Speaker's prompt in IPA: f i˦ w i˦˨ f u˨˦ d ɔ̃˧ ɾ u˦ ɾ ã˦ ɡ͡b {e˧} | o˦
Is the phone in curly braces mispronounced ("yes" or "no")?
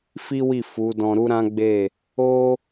yes